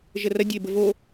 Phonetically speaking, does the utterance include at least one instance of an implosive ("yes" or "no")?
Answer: no